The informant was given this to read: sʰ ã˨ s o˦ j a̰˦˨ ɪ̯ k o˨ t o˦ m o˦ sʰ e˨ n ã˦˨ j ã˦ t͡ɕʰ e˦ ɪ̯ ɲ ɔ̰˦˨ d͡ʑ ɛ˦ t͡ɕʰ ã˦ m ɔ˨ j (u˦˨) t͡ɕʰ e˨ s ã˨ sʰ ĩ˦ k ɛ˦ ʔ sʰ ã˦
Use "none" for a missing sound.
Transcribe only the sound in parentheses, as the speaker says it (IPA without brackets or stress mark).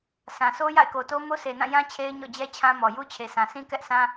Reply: u˦